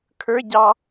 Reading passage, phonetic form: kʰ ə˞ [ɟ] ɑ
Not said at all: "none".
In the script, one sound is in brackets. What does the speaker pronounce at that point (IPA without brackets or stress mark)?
ɟ